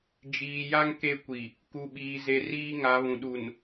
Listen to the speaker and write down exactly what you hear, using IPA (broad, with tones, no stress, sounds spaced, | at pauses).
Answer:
d͡ʒ iː˨ j a˦ ŋ k e˦ kʷ i˨ | k u˨ ɓ iː˨ z e˨ r iː˦ ŋ a˨˦ β ũ˨ ɗ u˨ n